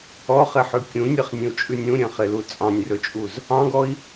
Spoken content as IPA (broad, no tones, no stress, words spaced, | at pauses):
ɔχeħʉ kʲũnʲɛχnʲẽu̯t͡ʃʼʉnʲ ũɾʲɛ̃χelu t͡sʼɑ̃nʲrɵt͡ʃʼuz | ɑ̃ɡɔi̯